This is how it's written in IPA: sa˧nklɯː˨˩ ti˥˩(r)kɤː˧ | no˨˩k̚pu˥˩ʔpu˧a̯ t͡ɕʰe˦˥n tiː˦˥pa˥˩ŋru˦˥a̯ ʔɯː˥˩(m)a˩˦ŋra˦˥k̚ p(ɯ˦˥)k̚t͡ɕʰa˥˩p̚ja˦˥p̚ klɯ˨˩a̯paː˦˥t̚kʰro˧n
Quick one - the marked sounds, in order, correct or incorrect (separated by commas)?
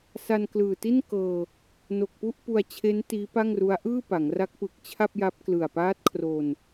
incorrect, incorrect, incorrect